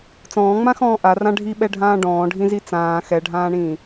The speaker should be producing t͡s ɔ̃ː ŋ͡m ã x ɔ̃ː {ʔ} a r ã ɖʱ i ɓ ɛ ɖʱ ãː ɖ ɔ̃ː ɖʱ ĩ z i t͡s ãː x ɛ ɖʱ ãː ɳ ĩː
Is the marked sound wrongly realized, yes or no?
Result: no